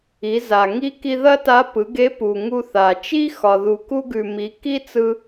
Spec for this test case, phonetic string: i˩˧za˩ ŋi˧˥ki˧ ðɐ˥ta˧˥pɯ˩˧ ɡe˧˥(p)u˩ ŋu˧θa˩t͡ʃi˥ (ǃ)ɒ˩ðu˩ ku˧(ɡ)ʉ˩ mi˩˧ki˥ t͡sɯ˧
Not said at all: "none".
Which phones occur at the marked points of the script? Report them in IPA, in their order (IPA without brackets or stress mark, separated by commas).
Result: p, x, ɡ